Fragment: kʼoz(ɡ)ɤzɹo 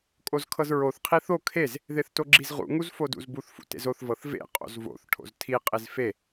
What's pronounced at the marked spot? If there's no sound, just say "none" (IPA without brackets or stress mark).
kʰ